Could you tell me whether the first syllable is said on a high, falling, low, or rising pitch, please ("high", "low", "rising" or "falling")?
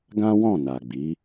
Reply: high